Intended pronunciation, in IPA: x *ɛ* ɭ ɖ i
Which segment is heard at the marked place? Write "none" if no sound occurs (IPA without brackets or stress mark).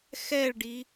ɛ